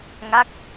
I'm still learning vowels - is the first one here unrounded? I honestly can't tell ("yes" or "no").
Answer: yes